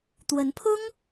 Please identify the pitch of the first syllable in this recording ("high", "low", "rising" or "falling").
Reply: rising